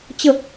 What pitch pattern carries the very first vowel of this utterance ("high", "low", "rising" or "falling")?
falling